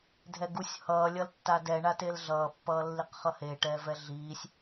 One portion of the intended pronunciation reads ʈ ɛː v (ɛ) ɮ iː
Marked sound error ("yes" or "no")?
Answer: no